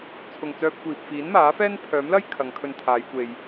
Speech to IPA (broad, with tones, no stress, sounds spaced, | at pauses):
t͡sʰ ʊ˨ ŋ t͡s œː˧ p̚ kʷ iː˨ p̚ f iː˨˥ n m aː˨˥ f ɛː˥ n pʰ œː˨˥ m l ɐ˥ j kʰ ɐ˨˧ ŋ kʰ ɵ˧ n t̪ʰ aː˨˧ j kʷ e˧ j